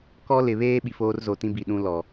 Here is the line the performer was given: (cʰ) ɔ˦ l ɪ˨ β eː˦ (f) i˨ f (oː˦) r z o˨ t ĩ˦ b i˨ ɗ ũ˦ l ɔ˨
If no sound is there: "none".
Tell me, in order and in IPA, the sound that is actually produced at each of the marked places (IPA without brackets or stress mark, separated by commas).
k, ɓ, oː˦